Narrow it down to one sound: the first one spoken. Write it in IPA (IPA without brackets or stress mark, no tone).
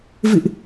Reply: v